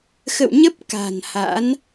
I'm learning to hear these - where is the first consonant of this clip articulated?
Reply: velum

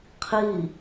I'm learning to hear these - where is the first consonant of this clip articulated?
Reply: uvula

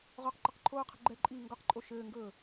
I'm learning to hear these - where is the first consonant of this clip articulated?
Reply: uvula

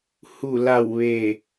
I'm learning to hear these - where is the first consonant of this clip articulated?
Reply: throat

